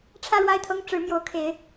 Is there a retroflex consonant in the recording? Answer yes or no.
yes